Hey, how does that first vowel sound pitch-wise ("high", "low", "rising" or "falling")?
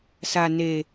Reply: low